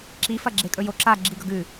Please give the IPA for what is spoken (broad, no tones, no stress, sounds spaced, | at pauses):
ǁ i f ɐ ɡ͡ǁ e kʼ ɵ j o ǁ a ɡ͡ǁ i ɡ ɵ ɡ ʉ